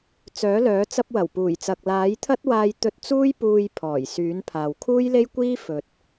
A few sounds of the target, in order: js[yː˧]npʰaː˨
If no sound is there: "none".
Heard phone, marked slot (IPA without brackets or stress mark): yː˨˥